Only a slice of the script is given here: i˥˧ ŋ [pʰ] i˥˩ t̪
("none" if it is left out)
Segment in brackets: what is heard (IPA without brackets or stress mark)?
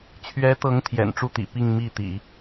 m